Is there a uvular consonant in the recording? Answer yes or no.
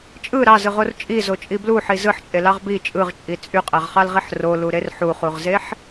yes